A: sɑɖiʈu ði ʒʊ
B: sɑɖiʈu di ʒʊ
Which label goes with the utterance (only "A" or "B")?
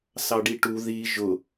A